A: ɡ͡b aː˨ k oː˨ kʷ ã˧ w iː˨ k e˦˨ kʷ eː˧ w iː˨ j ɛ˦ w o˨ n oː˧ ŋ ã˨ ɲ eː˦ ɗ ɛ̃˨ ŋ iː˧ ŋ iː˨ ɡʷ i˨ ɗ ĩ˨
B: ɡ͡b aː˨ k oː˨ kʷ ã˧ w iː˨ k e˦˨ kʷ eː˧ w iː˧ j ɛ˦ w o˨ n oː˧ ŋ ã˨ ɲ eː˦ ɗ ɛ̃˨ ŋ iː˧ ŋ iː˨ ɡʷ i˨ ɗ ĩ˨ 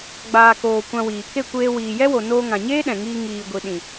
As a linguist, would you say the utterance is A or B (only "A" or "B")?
A